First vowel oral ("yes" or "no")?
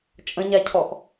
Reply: no